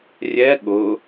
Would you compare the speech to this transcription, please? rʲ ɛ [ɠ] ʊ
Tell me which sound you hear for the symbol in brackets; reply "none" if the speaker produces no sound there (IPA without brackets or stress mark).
ɠ